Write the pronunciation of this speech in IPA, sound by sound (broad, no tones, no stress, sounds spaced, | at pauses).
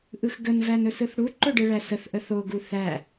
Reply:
ʔ ɯ x ɡ ə n v æ n ɵ s ɯ θ ɽ u ǃ ɵ ɖ ɨ ɭ æ s ə θ ʔ ə θ o ɡ u θ æ